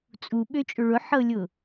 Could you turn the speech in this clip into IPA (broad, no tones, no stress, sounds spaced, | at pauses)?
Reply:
t͡sʼ u ɓ ø t͡ʃʼ ʊ ɭ ʊ ħ ɤ lʲ ʊ